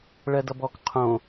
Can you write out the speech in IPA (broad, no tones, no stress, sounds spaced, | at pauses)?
ɭ ɜ d ʌ b ɔ k qʰ õ